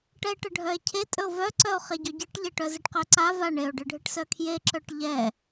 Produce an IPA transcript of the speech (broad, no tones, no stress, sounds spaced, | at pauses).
ʈ ɛ e̯ ʈ ə ɖʱ œ e̯ cʰ e tʼ ɵ o̯ v œ ǀ œ o̯ χ e ɟ ɔ ɟ ɨ ʈ ʎ e ʈ œ z e ʈ q œ ǀ a v a ɳ e o̯ ɖ ɨ ɖʱ ɨ ʈ s œ kʰ j e ǁ œ ʈ ʎ ɛ